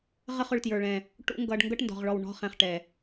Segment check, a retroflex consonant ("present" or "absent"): present